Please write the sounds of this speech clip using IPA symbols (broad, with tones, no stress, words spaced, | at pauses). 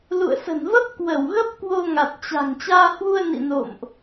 lṵ˧˨ə̯sə̤˨˩nvə˦˥p̚ kwə˧˩wɣə˦˥p̚ kwo˧ŋa˨˩t̚t͡ɕa̤˨˩ŋ t͡ɕaː˧hwu˧ə̯ nḭ˧˨no̰˧˨mʔ